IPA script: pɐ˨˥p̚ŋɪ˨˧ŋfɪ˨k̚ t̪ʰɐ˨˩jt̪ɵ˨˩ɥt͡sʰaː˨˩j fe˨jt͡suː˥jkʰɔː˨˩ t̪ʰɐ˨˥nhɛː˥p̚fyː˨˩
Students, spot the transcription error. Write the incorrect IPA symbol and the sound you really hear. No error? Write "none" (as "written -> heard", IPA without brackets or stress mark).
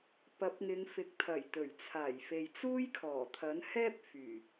none